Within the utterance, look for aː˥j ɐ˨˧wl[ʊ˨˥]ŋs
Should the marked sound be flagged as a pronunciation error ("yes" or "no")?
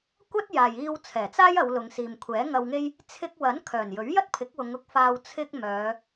yes